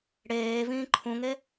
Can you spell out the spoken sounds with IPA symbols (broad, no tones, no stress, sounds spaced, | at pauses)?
ɽ eː v ĩː ǃʰ ũ ŋ e